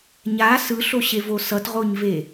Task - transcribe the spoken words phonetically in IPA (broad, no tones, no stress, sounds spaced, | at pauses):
ɲ a s ɯ ɬ o ɕ e v o s ʌ t ʁ o ɲ v e